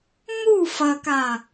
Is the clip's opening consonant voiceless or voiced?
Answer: voiced